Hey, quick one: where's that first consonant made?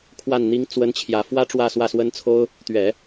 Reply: velum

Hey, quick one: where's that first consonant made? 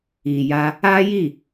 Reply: palate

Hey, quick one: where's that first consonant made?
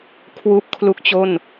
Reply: velum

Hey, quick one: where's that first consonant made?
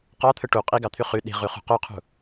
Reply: uvula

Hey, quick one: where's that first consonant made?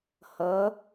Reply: throat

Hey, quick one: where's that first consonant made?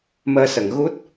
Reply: lips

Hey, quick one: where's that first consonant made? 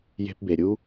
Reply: palate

